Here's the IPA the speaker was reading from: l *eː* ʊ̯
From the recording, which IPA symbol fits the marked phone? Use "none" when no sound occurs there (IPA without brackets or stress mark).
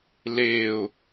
eː